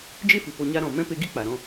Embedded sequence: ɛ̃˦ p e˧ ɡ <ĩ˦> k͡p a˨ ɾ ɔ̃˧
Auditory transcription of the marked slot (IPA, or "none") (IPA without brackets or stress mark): i˦